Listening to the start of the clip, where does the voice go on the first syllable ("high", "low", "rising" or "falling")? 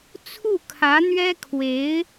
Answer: falling